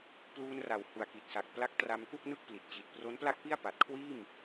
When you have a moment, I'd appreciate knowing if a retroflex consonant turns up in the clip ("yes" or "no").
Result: no